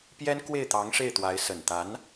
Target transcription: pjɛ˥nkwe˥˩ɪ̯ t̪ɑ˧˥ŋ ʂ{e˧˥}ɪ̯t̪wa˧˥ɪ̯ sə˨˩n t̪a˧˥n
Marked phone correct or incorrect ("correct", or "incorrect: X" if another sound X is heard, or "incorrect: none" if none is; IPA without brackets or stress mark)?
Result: incorrect: e˥˩